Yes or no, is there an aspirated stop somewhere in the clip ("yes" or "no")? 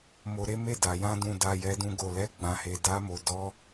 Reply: no